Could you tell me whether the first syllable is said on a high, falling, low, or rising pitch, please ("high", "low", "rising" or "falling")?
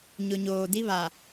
low